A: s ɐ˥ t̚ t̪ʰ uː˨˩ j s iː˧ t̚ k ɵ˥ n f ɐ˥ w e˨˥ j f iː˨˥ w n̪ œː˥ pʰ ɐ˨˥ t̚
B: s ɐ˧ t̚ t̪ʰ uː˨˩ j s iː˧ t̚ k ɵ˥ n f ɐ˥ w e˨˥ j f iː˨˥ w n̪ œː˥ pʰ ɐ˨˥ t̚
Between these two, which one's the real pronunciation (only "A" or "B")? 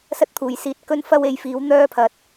A